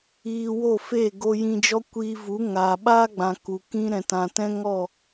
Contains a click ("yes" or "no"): no